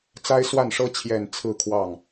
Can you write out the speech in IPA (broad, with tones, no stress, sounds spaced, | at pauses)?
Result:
t͡s a˥ ɪ̯ s w a˥˩ n ʂ ɤ˥ t͡ɕʰ j ɛ˨˩ n t͡sʰ ɹ̩˥˧ kʰ w ɑ˥˩ ŋ